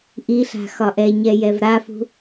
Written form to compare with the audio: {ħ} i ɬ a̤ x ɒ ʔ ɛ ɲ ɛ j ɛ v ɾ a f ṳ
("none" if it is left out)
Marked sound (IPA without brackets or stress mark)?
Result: ʔ